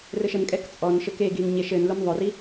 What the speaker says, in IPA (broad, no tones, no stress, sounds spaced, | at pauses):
r ɘ ʃ ə n kʼ ɛ k t͡sʼ ɔ n ʃ ɘ k e ɡ i n ɲ e ʃ ɘ n l ʊ n ðˤ ʊ r i